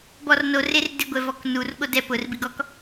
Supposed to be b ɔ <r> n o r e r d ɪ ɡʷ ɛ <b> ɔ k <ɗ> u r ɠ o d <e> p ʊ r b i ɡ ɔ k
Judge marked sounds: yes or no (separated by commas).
yes, no, no, no